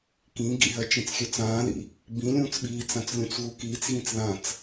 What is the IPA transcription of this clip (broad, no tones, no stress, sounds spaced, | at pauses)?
k ĩ ɡ ḭ ɦ ɜ t͡ʃ ĩ t͡s xʲ ø t͡s ãː ð ḭ | b ĩ lʲ ũː t͡s ɓ iː t͡s ã t͡s lʲ ũ t͡s ɣ u k iː t͡s ɣ ĩ t͡s ð ã t͡s